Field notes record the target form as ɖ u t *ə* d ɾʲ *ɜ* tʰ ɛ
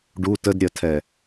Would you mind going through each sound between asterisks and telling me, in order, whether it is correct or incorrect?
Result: correct, correct

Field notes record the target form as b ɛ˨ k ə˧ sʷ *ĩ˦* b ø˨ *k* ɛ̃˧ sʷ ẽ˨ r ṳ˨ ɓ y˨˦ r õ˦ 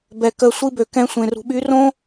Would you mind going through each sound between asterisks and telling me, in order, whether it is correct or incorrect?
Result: incorrect, correct

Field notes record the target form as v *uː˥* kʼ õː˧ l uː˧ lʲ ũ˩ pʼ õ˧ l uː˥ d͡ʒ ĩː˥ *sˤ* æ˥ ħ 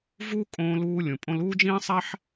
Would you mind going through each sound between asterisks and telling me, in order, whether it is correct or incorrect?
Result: correct, correct

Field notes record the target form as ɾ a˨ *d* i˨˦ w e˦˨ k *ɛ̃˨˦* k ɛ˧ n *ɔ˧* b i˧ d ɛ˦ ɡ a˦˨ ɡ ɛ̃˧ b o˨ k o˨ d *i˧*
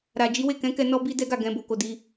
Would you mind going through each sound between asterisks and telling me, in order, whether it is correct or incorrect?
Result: incorrect, correct, correct, correct

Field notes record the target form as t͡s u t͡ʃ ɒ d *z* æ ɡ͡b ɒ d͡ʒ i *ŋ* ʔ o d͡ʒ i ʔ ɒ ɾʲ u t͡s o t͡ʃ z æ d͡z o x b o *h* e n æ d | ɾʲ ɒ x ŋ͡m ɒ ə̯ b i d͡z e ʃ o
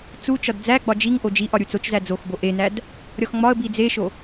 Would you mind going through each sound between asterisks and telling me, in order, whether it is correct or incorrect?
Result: incorrect, correct, incorrect

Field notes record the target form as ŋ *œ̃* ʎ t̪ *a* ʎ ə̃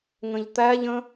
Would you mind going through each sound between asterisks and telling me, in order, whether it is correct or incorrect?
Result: incorrect, incorrect

